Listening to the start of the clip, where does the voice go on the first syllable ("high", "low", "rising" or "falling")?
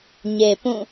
low